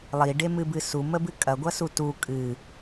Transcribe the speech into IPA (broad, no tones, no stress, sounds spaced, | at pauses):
lˠ i ɖ e m ɨ b ɨ s u m ə b ɨ kʼ ɐ ɡʷ ɐ s u t u kʼ ɨ